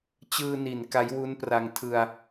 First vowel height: high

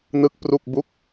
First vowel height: high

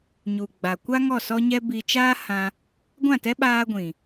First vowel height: high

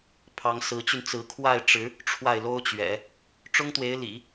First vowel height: low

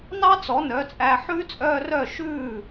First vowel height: low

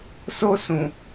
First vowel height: mid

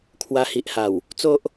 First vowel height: low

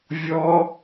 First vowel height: mid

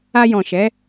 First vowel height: low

